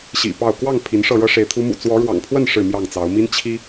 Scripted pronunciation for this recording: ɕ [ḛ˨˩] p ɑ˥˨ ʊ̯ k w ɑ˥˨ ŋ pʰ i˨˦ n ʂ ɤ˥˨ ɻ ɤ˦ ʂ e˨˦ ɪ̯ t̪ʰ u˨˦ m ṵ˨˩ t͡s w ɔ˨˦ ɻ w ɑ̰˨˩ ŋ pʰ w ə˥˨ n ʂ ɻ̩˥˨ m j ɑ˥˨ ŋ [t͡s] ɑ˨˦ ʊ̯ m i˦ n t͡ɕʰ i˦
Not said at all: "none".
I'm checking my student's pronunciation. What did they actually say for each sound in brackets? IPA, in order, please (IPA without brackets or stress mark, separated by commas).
ḭ˨˩, t͡s